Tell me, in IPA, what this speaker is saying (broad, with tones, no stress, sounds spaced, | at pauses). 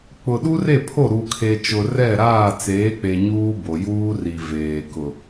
k͡p ʊ˨ ɗ u˦ r e˦˨ pʰ o˦˨ ɾ u˨ kʰ e˨ t͡ʃ ʊ˨ r ɛ˦˨ ɾ aː˦˨ t͡s eː˨˦ k͡p e˨ ɲ uː˦ b o˨ j uː˦ r i˨ v eː˨ k ʊ˨